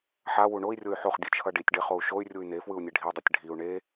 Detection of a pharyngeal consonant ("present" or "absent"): present